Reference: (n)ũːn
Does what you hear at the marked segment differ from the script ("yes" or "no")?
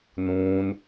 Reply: no